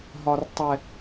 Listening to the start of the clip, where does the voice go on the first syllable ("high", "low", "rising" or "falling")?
high